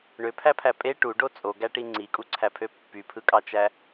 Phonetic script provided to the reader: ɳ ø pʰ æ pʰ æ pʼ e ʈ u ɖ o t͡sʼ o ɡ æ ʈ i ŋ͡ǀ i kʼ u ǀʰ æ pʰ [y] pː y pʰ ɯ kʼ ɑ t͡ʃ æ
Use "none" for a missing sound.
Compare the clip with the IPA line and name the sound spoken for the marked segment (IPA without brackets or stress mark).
ø